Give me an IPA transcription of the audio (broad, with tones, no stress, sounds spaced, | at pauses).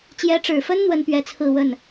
t͡ɕ j ɛ˧˥ ʈ͡ʂ ɻ̩˨˩ f ə˥ n n̪ w ə˥ n p ɥ ɛ˥ t͡sʰ ɹ̩˥˧ w ə˥˩ n